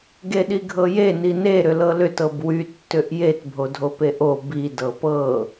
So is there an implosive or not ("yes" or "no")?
yes